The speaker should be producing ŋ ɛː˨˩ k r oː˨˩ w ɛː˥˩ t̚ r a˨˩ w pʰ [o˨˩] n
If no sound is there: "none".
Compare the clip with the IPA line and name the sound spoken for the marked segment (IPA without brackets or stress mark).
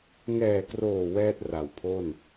o˥˩